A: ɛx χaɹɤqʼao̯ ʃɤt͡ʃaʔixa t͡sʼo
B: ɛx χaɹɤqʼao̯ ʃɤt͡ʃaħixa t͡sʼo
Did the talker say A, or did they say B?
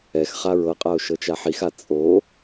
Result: B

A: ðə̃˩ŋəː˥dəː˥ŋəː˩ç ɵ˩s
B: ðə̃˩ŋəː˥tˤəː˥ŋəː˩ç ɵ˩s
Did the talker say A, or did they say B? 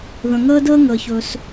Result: A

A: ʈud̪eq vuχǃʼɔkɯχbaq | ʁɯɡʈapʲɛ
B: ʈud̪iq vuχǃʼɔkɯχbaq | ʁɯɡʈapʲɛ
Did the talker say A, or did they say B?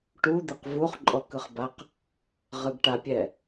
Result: A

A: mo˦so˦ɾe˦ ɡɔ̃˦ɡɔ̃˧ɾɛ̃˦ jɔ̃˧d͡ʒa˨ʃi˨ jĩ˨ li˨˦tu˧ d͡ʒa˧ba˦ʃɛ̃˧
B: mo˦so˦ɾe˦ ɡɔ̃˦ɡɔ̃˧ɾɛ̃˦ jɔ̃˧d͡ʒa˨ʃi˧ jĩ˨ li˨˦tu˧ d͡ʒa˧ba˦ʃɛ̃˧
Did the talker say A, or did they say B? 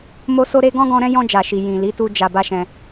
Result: A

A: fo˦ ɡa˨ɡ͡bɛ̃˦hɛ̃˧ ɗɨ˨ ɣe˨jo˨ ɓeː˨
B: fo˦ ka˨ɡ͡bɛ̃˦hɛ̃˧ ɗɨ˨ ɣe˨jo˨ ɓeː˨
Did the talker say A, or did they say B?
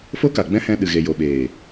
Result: B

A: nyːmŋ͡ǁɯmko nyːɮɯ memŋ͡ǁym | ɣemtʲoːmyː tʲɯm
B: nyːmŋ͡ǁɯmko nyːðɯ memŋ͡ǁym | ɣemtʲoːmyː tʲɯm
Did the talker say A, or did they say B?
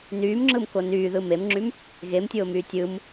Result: B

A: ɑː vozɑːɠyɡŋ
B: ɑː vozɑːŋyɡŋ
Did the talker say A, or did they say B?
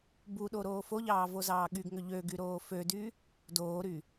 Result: A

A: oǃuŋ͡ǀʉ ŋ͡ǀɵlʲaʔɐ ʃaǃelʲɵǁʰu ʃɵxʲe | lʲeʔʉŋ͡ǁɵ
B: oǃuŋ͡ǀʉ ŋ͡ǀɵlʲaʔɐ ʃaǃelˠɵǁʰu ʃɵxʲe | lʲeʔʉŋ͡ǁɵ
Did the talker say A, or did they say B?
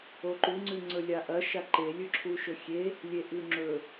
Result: A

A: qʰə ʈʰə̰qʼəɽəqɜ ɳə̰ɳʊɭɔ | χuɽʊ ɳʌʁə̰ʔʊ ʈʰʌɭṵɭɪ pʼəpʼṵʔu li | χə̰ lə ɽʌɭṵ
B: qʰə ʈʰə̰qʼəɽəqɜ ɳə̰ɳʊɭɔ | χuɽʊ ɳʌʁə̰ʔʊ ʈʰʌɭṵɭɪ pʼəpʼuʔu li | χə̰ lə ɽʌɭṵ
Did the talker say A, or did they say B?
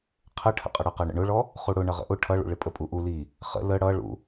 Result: B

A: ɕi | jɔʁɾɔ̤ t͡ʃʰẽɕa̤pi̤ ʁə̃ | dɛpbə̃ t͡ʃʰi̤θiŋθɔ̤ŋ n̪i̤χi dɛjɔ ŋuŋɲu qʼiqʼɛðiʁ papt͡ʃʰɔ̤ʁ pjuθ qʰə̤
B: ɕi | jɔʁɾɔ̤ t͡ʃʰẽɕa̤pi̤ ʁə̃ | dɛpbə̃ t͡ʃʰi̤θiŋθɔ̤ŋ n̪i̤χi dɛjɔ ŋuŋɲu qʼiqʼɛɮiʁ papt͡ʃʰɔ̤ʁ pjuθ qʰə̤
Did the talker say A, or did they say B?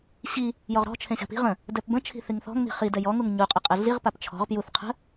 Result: B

